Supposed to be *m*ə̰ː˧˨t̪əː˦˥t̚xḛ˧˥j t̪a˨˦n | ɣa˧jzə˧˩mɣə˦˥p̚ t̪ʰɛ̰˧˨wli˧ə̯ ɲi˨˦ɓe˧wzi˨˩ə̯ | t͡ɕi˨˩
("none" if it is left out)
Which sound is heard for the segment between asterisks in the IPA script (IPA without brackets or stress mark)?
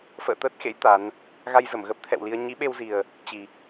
f